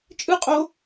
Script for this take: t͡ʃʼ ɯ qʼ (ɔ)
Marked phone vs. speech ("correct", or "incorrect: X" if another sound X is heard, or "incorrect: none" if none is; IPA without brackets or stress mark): incorrect: o